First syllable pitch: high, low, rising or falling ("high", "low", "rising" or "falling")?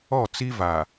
falling